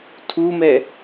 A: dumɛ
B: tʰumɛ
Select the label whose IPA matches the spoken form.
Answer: B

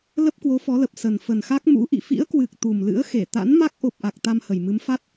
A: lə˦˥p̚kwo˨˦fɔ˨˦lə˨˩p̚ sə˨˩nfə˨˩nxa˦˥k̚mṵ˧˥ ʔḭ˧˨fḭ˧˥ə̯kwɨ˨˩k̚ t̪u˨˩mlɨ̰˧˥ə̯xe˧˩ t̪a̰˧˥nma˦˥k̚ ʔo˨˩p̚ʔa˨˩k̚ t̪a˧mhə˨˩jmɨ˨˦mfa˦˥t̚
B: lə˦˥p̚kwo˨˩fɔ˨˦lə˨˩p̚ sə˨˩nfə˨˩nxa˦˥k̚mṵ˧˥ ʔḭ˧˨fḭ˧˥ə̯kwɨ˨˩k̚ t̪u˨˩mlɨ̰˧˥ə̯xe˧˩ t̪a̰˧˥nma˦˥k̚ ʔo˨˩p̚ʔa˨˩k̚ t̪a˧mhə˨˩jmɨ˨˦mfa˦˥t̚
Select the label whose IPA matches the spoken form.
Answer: A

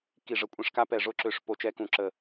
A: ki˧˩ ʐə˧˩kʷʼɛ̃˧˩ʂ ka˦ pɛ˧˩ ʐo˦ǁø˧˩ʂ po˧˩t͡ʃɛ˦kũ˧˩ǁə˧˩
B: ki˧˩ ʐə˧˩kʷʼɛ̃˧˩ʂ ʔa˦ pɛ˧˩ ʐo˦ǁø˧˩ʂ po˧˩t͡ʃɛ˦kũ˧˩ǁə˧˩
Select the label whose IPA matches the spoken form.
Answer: A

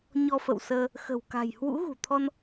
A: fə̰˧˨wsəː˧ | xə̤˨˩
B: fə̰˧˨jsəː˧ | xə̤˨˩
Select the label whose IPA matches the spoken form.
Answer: A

